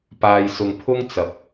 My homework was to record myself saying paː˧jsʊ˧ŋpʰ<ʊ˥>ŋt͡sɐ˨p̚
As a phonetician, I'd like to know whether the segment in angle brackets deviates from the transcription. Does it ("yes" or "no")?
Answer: no